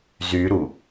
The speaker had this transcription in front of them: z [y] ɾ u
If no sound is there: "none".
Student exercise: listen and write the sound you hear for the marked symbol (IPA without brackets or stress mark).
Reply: y